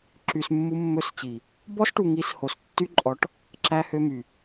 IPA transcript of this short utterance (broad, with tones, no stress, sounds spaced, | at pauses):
ǁ y˧ s mː u˦ mː ɵ˦ s t͡ɕ i˨ | b ɔ˦ s ʈ u˨ ŋ i˨˦ s h o˨ s tː y˦ ǃʼ ɔ˨˦ ʈ | ǁ æ˦ h ø˦ m y˨